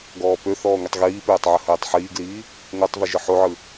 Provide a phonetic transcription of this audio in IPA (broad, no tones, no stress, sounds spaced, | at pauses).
ɡ ɔː p ø θ ɔː ŋʷ i tˤ ɣ iː p øː tˤ ʕ ə h øː tˤ ħ iː ɡ l iː | ŋʷ a tˤ v i ʒ ɯ ħ o ʕ ɯ